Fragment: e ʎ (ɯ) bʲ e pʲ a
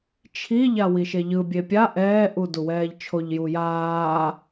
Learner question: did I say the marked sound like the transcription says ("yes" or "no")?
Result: yes